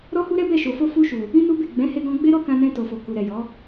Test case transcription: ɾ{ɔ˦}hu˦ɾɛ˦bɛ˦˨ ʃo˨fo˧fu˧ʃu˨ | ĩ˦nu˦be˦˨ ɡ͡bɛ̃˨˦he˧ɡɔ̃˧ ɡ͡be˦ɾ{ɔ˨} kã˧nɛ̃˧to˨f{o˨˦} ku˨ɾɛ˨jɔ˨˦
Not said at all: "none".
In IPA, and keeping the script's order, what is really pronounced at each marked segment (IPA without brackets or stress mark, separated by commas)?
ɔ˦, ɔ˦, o˨